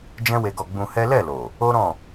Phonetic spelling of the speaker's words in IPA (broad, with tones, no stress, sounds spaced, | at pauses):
d͡ʒ ɛ̃˦ w e˧ ɡ ɔ˧ ɡ͡b ũ˧ h ɛ˦ l ɛ˦˨ l o˨ | o˦ ɾ ɔ̃˦˨